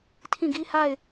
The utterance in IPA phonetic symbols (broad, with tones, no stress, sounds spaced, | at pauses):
tʰ ĩ˦˨ ɡ i˦ h a˦˨ ɪ̯